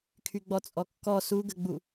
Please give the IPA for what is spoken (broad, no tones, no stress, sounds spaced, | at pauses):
kʰ y ɡ͡b ɔ t͡sʼ ɔ kː ɔ s u ɡ ə ɡ͡b u